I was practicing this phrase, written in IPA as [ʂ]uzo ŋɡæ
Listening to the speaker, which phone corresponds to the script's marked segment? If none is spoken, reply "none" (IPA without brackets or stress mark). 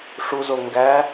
ʂ